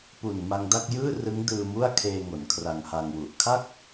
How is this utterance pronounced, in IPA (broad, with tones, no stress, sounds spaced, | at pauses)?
p u˨˩ n m a˧ ŋ d a˥˩ k̚ j ɯː˥˩ r ɯ˦˥ ŋ d ɯː˧ m u˥˩ a̯ kʰ eː˧ ŋ o˩˦ n kʰ r a˧ ŋ h a˧ ŋ w u˨˩ ʔ kʰ a˥˩ k̚